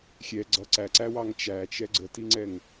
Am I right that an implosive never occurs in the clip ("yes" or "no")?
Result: yes